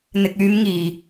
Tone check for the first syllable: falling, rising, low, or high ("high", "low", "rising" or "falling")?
low